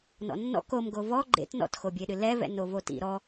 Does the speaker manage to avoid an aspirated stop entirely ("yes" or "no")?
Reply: yes